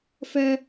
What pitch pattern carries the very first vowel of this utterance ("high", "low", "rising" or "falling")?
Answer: high